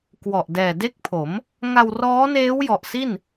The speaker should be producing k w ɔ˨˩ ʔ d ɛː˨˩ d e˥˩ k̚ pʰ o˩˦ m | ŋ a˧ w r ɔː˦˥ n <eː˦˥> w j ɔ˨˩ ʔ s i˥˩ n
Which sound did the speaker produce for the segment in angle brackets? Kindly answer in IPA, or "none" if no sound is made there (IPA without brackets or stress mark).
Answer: eː˦˥